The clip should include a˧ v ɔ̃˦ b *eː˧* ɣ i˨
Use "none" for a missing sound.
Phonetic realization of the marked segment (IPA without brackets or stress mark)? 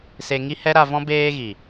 eː˧